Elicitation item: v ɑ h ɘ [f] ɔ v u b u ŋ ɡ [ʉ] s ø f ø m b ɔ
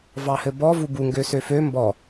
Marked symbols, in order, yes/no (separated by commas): no, no